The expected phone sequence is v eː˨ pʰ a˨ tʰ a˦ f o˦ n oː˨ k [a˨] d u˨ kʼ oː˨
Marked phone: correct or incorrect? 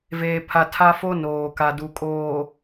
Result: correct